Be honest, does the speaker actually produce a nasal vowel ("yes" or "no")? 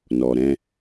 yes